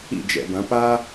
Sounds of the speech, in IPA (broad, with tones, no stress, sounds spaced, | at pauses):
ḭ˦˨ d͡ʒ ɛ̰˨ b ɐ̃˨˦ p a˦